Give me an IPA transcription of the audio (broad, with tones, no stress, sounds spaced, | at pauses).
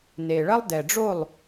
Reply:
n e˨ ɭ ɐ˦ lˠ d ɛ˨ ɖ͡ʐ o˦˨ lˠ